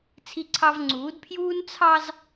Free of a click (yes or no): no